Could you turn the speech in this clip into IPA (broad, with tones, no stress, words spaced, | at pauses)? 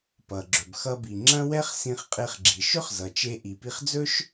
pʌ˩ɡ͡ǁɵ˩b xʌ˧bi˩ ŋ͡ǁɐ̃˥ wɛ˥χsĩ˧χqʼe˧χɡ͡ǁi˩ ʃɵ˥χzʌ˩t͡ʃe˧ ʔi˩pi˧χd͡zɵ˥ʃ